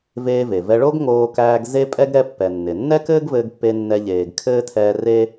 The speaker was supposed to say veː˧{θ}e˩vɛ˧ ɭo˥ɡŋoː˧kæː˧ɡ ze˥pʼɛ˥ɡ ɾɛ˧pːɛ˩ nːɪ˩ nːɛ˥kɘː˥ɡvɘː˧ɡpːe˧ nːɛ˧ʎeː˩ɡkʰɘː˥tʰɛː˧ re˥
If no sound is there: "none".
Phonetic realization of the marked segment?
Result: v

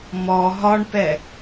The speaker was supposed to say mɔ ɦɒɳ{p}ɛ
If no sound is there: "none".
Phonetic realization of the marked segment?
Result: p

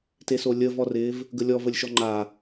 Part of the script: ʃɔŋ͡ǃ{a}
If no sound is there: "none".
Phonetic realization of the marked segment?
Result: a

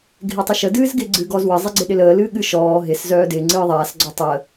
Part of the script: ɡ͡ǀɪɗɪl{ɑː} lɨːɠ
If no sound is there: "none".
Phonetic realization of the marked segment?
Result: əː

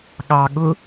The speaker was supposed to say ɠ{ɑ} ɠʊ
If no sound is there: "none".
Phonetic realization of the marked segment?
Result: ɑ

